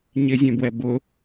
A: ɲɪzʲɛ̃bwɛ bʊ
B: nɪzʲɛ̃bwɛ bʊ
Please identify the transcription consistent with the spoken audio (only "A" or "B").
A